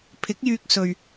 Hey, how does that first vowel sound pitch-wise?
rising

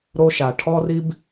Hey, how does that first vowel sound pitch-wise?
high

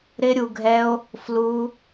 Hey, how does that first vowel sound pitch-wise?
high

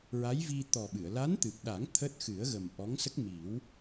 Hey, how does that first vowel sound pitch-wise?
rising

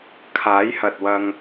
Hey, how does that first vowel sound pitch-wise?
rising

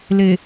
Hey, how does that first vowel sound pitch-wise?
low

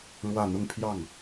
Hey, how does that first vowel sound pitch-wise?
falling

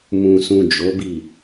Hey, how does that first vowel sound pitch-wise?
low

